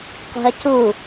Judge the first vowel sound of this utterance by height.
high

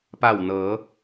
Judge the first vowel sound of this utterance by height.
low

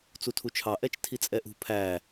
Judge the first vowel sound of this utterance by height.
high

